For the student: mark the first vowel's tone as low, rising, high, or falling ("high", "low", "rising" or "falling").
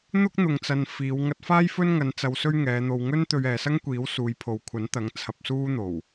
high